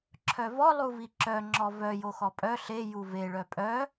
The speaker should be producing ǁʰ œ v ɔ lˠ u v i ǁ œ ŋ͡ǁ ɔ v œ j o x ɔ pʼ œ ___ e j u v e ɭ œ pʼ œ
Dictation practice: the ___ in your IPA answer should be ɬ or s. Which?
ɬ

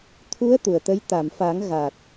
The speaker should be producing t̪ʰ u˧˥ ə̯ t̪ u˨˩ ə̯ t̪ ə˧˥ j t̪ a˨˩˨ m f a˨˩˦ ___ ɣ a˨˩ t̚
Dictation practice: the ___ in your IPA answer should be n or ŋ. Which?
ŋ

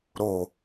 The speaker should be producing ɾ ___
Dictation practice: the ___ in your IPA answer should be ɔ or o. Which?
o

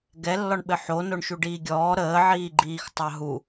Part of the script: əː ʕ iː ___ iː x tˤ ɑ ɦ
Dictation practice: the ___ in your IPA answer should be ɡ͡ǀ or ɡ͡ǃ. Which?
ɡ͡ǃ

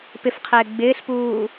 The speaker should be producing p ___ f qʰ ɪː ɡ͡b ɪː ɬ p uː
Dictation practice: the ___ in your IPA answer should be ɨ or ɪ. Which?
ɪ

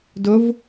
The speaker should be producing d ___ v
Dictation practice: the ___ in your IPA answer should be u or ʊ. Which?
ʊ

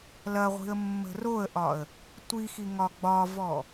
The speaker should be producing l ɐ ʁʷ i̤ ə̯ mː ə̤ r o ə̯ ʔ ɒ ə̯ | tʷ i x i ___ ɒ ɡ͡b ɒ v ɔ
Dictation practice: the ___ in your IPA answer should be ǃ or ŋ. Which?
ŋ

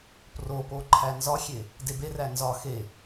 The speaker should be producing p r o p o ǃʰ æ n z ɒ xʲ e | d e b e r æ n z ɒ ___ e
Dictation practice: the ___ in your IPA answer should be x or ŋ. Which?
x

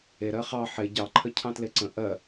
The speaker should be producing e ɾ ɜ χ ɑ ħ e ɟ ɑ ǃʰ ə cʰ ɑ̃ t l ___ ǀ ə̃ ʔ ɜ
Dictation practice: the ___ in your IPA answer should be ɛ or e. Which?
e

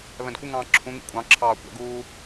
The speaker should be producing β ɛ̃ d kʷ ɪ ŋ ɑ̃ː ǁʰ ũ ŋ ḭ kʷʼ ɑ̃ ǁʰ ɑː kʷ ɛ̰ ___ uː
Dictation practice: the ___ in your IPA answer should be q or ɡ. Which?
ɡ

